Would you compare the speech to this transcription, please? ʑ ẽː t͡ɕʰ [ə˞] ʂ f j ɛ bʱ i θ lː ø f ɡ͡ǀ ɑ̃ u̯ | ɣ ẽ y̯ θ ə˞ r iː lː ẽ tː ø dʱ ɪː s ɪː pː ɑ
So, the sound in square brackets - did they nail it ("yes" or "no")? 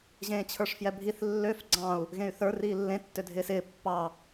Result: yes